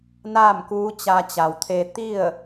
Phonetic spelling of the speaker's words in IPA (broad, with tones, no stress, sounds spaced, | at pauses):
n aː˥˨ m k uː˧˥ t͡ɕ a˧ t͡ɕ a˩ w t̪ʰ e˧ t̪ i˥˨ ə̯